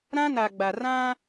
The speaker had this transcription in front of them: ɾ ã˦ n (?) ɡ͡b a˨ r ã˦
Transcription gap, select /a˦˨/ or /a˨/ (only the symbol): a˨